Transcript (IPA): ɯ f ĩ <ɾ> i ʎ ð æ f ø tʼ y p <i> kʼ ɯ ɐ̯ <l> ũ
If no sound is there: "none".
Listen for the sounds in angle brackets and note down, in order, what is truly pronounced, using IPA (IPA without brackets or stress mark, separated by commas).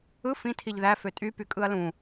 tʰ, y, l